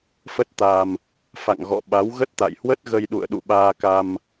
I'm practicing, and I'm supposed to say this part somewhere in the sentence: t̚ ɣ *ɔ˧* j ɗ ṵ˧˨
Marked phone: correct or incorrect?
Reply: incorrect